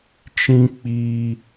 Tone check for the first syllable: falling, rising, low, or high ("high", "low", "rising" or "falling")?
high